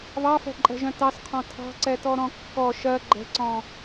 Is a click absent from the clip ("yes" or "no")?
no